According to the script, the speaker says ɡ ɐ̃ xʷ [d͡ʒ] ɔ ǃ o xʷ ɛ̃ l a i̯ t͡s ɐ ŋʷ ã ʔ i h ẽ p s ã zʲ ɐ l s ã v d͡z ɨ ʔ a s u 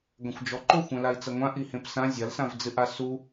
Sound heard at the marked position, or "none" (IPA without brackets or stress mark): d͡ʒ